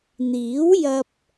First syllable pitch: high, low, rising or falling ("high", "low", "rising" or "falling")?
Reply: rising